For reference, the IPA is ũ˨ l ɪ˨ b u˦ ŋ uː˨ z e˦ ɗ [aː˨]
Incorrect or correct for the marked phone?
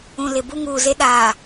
correct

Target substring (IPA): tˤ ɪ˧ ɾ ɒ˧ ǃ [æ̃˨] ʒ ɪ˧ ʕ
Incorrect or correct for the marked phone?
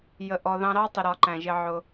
correct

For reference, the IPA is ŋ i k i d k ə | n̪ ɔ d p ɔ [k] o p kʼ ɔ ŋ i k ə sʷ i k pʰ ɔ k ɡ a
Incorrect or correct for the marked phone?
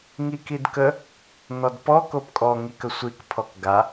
correct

